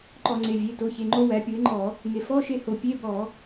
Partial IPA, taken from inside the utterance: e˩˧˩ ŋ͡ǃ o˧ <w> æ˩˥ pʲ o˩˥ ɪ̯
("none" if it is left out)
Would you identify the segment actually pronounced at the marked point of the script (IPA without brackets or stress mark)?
w